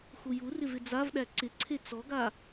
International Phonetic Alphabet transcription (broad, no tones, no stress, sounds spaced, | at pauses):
x u j u r ɪ v ɪ d͡z a v ɗ æ ǀ ɪ ǀʰ e t͡s ɔ ɡ a